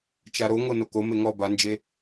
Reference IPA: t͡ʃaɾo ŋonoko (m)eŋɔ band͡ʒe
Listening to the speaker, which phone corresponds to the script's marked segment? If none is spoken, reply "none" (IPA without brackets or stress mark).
m